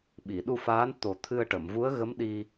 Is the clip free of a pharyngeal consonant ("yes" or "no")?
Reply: yes